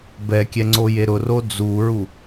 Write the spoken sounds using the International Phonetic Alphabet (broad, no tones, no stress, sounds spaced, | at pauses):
b ɛ kʲ ɛ ŋ͡ǀ o j e ɾ ʊ r o d͡z u ɹ u